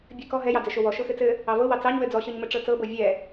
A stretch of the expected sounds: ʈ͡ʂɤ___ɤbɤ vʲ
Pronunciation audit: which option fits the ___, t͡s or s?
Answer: t͡s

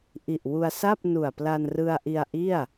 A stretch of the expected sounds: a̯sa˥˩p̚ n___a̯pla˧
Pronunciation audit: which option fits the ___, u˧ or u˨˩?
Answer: u˨˩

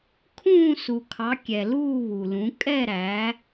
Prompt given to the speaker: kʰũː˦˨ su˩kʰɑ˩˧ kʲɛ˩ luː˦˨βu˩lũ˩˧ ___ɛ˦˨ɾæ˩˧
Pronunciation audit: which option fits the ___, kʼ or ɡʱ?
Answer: kʼ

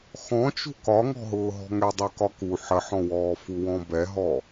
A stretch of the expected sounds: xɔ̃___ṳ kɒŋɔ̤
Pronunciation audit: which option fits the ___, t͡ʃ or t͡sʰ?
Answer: t͡ʃ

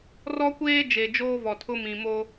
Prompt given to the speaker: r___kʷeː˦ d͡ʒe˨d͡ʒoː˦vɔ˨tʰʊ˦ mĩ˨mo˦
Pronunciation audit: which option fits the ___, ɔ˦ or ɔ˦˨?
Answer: ɔ˦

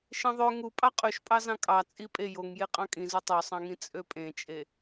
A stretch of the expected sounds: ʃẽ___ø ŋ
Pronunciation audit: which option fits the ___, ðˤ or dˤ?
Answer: ðˤ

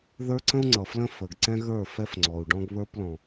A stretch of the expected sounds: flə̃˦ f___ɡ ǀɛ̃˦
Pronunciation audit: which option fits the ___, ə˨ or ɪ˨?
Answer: ə˨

